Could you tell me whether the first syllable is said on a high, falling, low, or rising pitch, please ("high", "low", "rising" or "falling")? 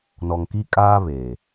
low